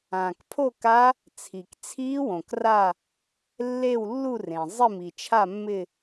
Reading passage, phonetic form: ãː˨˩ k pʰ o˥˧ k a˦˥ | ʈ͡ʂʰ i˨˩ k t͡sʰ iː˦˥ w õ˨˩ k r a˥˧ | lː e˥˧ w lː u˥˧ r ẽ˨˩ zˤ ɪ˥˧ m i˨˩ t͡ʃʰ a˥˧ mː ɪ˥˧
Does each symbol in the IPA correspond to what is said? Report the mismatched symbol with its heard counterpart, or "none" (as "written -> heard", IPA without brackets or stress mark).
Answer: ʈ͡ʂʰ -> t͡sʰ